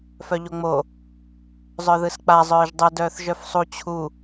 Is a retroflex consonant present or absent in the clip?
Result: absent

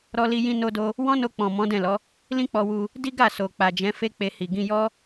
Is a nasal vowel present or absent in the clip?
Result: present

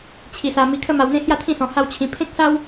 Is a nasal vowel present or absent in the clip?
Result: present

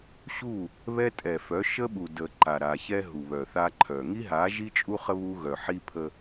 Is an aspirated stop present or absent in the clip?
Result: present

